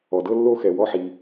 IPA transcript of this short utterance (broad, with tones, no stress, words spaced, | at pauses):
ɔ˩dɤ˥ lːo˥xɛ˩ wɔ˥ħi˩